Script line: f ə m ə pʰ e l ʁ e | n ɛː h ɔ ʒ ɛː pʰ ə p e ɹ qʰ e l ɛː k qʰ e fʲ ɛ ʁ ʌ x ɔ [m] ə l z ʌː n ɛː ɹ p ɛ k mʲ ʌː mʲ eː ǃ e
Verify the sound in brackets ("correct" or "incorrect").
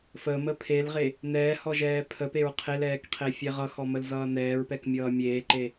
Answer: correct